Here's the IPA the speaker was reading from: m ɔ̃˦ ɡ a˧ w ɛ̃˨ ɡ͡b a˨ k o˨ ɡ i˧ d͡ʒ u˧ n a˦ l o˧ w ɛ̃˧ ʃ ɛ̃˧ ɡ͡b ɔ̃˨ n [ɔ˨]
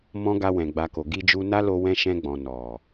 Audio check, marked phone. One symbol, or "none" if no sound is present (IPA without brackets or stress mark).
ɔ˨